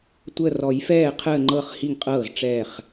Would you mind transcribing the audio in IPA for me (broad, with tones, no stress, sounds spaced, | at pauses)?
tʷ ə˧˩ r ɔ˨˩˦ j f ɛː˧˩ qʰ əː˧˩ ŋ͡ǃ ɤ˧˩ χ h i˧˩ ŋ qʼ ɤː˧˩ z ʈ͡ʂ ɛː˧˩ χ